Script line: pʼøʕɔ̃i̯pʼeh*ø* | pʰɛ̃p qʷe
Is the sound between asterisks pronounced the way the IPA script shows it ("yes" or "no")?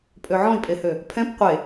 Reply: yes